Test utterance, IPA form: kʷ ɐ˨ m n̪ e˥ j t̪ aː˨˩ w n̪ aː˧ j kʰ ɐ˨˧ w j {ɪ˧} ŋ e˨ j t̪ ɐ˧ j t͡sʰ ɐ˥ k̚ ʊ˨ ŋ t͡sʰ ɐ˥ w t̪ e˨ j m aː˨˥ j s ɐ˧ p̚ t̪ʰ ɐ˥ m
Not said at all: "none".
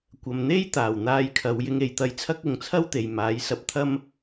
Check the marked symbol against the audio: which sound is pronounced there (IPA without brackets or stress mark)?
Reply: ɪ˧